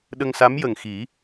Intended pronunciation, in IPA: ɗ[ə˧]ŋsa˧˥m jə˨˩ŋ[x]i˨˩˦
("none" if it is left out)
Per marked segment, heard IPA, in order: ə˧, x

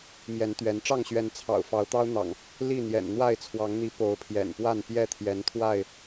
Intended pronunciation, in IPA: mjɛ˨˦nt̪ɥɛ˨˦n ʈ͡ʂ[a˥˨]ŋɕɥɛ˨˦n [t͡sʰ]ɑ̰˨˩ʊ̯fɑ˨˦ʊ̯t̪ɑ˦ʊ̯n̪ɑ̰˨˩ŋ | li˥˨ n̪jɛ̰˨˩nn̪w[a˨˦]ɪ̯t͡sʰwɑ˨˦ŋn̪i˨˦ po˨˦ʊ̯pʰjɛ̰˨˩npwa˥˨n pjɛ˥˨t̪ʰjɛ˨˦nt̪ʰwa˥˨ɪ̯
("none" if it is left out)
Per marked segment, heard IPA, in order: ɑ˥˨, t͡sʰ, a˥˨

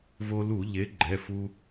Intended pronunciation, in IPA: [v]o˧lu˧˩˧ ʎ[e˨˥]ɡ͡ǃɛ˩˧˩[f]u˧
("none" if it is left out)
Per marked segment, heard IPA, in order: v, e˨˥, f

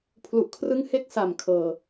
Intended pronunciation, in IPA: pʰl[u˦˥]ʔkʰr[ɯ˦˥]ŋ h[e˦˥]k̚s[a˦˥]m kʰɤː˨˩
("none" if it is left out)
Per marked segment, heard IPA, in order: u˨˩, ɯ˦˥, e˦˥, a˨˩

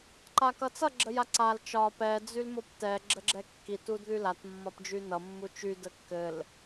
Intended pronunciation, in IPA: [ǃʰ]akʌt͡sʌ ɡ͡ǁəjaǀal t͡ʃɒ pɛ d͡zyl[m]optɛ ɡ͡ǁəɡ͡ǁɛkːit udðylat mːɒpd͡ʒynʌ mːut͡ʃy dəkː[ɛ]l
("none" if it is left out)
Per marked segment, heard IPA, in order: ǃ, m, ɘ

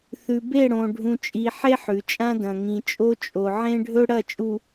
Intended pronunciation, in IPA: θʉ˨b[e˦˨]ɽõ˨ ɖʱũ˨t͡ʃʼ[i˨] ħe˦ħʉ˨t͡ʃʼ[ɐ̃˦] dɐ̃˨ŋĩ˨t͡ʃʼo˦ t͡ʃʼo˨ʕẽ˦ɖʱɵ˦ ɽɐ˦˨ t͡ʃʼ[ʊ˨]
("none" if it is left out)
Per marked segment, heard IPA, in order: e˦˨, i˨, ã˦, u˨

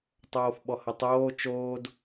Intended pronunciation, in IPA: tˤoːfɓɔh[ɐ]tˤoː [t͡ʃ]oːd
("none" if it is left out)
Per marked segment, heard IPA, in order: ɐ, t͡ʃ

